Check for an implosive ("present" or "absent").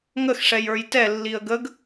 absent